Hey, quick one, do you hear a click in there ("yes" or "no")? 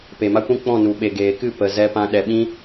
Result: no